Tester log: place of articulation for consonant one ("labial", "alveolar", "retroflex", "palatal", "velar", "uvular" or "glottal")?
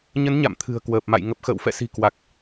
palatal